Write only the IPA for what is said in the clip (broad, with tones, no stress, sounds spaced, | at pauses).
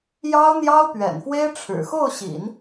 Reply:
j ɑ˥ ʊ̯ n̪ j ɑ˥ ʊ̯ p ɥ ɛ̰˨˩ n f w e˥ ɪ̯ ʈ͡ʂʰ ɻ̩˨˩ x o˥˩ ʊ̯ ɕ ḭ˨˩˦ n